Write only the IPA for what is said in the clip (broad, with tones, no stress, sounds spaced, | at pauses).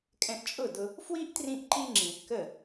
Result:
kʼ ɛ̃˧ ʔ t͡ʃʼ ʊ˦˨ d ʊ˧ | f w i˦ ʔ t r ĩ˧ ʔ ǃ i˧ ŋ͡ǁ ĩ˨ ʔ k ə˦˨